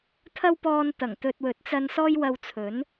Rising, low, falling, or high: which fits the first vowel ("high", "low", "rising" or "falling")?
high